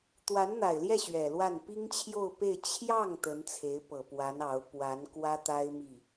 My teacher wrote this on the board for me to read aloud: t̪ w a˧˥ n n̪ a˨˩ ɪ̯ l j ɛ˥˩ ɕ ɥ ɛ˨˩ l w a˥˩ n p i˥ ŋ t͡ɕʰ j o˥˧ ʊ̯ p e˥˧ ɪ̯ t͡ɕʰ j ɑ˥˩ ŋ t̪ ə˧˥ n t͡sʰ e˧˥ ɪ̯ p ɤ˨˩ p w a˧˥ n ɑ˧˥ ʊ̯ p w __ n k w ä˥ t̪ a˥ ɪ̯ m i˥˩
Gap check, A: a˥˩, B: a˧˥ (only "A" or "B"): B